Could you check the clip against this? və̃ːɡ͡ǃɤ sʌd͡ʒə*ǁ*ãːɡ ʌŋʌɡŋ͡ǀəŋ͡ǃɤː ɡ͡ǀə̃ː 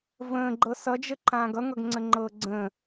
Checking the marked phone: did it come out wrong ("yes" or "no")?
yes